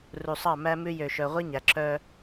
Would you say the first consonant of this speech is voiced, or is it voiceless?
voiced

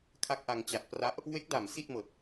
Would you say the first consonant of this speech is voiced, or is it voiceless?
voiceless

